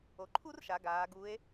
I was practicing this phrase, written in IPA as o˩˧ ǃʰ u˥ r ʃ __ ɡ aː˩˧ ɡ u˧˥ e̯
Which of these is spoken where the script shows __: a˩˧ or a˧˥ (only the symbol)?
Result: a˩˧